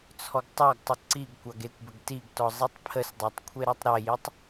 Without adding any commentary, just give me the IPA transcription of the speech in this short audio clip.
t͡sʰ ɔ ɡ tˤ ɑ ɡ tˤ ə ǀ i ɡ kʷ ɑ ɡ e kʷ b ə ɡ t i ɡ t ɔ zˤ i tˤ pʰ ə s dˤ ɑ tˤ kʷʰ e ɾ ɑ tˤ ɾ e j i tˤ

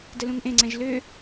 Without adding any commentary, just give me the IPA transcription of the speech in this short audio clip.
d ə l ũ ŋ ʔ ẽ ŋ͡ǀ ɛ̃ ʒ l ø

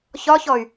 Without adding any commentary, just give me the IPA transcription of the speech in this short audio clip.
ç ɒ ç ɔ y̯

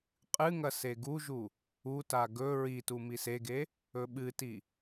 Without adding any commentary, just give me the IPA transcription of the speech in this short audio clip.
qʼ ɨ ŋ ɐ s e ɡ u ʒ u | u t a ɡ ɵ ɹ i t u m i s e ɡ e | ɵ ɓ ɨ t i

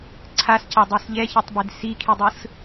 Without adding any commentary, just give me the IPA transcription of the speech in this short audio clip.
ǀʰ a s c a dˤ ɛ s ʎ ɛ ç ɛ tˤ b e d s i kʰ i dˤ ɯ s

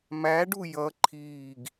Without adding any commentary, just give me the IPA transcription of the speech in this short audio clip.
m æ ɖ u j ʌ ǃʰ iː ɡ

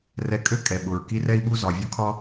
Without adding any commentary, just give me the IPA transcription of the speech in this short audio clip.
r ɛ˧ kʼ ø˥ kʼ ɛ˩ ɓ ʊ˩ ɹ k i˥ r ɛ˥ i̯ ɓ u˥ z ɒ˩ vʲ ʊ˥ kʰ ɒ˥

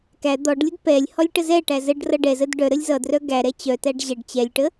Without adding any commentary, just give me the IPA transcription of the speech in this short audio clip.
k æ d̪ ɔ ɖ lʲ ə d p ɛ lʲ h ɔ lʲ ʈ ə z ɛ ʈ æ z ə ɖ r ʌ ɖ ɛ z ə d ɖ œ ɾ ə lʲ z ʌ d r œ ɡ æ ɾ ɛ t͡ɕ œ t æ ɖ ʑ ɛ ɖ t͡ɕ ɛ lʲ ʈ ə

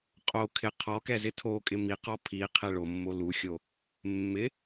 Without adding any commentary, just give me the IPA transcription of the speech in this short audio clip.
qʼ o kʰ ɪ qʰ ɔ k ɛ z ɪ tʰ o kʼ ɪ m i q ɔ pʰ i qʰ e ɭ o mː o l u xʲ o | mː ɪ

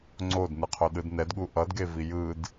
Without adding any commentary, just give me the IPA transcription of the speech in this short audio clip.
ŋ͡ǀ o d n ɯ qʰ o ɗ ɯ d n ɛ d ɠ u ʔ ʌ d ɡ e v i j ɯ d

